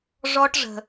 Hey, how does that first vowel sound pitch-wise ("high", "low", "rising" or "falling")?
high